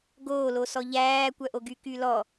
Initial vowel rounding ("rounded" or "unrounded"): rounded